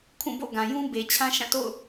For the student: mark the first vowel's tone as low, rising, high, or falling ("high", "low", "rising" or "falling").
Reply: falling